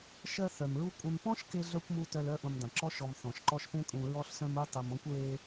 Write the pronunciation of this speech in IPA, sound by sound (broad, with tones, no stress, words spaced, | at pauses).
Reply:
ʃɜ˦ θœ˨mɹu˥kʷʼœ̃˦m pɔ̃˥ʃ ke˥ɮœ˥kʷmu˦ tœ˦lœ˥ ʔũ˨mdˤẽ˩ ǁɔ˥ʃɔ˨m θɔ̃˩ʃ ǃɔ˦ʃpẽ˥kʼũ˨ ɹɔ˦ɬsœ̃˦mu˦ tˤɜ˨mɔ̃˥kʷɹe˦